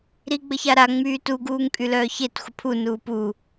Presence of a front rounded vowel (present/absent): present